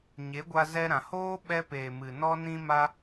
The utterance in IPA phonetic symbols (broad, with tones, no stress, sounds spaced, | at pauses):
ɲ e˨˦ ɡʷ a˧ z ɛ˧ ɾ ã˨ h oː˦ ɓ ɛ˦ p eː˨ m ɨ˨ n ɔ˦ n ĩ˦ m a˦